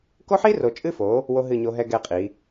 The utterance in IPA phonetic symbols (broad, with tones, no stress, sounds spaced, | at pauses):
k o˦ ħ i˦ r o˨ t͡ʃʼ ɨ˦ f o˨˦ | w o˦ ɦ ɨ˦˨ ɲ o˦ ɦ ɛ˦ ɡ ɛ˦˨ qʼ i˨˦